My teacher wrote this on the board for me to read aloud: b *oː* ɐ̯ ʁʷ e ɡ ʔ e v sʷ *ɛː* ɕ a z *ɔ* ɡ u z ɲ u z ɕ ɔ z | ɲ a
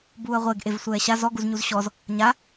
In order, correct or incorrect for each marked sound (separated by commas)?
incorrect, correct, correct